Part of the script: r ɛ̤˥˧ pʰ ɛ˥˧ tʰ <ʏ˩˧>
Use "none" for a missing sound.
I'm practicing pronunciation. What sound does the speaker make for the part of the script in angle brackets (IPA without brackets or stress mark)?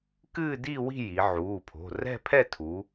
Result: u˩˧